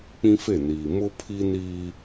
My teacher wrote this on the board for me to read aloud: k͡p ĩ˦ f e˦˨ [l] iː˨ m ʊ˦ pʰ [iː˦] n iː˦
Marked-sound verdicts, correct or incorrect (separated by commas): incorrect, incorrect